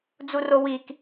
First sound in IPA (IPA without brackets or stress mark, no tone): d͡z